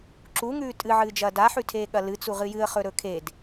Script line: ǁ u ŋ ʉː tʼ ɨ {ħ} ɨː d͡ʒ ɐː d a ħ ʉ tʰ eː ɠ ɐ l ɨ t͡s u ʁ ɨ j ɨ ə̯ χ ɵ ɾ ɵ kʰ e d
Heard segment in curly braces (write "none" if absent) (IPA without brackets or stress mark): ʕ